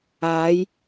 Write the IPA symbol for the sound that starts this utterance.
aː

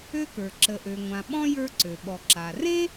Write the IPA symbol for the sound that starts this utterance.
ø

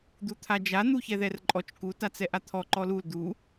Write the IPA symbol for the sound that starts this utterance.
d̪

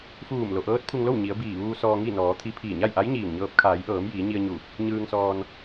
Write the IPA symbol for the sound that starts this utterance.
f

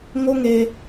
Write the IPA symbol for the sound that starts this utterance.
ŋ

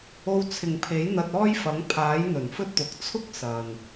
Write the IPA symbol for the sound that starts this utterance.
o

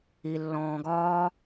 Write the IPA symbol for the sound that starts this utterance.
i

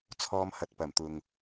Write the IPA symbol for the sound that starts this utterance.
t͡sʰ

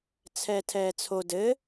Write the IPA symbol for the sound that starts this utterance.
t͡sʰ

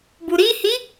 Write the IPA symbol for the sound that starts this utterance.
b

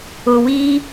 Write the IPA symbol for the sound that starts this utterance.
ʊː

